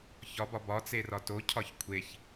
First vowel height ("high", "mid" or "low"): low